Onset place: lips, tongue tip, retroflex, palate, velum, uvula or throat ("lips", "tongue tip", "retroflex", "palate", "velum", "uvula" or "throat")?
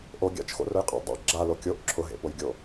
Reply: throat